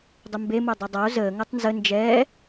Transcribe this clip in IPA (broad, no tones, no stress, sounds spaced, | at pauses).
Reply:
dˤ ʊ m b e m o dˤ e dˤ a o̯ z əː ŋ ə tˤ n z ə n d͡ʒ ɛː